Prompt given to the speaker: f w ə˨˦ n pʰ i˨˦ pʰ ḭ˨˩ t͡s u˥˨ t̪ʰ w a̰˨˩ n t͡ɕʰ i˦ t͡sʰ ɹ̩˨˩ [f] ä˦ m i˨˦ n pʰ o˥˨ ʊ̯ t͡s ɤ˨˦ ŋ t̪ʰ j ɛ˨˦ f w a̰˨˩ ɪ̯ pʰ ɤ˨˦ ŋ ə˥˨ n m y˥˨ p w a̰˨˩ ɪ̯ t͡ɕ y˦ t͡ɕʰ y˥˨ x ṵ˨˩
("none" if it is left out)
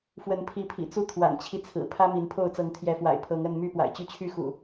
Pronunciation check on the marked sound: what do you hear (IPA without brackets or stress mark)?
pʰ